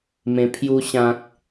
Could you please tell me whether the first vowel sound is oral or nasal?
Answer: nasal